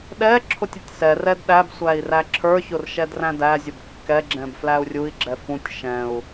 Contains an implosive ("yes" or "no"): yes